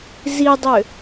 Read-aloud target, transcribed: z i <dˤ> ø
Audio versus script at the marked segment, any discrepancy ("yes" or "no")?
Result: no